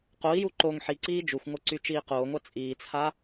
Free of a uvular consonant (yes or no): no